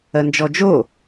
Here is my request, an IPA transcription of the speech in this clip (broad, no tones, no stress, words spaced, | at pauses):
ɜnd͡ʒɔd͡ʒo